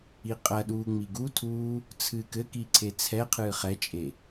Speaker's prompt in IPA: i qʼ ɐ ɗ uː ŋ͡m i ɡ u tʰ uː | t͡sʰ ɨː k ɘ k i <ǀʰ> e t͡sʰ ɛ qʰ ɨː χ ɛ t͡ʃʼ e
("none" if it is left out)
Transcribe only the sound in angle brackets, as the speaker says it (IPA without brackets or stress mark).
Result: ǀʰ